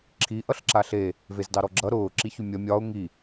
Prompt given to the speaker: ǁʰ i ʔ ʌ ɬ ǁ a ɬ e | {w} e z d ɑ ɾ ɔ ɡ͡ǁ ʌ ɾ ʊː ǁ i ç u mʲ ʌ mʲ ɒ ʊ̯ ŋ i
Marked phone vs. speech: incorrect: v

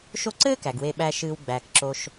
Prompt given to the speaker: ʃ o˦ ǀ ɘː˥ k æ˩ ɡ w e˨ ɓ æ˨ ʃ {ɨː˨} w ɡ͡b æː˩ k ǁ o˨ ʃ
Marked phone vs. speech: correct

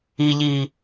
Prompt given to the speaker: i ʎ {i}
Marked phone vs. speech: correct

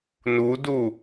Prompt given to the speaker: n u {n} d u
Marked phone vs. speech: incorrect: none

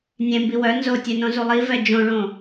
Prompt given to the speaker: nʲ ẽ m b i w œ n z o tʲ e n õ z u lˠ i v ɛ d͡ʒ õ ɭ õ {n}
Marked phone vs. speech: incorrect: none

